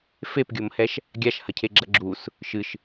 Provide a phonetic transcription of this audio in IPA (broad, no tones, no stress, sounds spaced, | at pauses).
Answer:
f e p ɡʲ o m h ɛ ʃ | ɡʲ a ʃ h ɐ cʰ e ɡ͡ǁ ɐ ɡ͡ǁ u s | ʃ ɨ ʃ